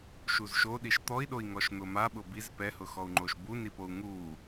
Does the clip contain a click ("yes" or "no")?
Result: yes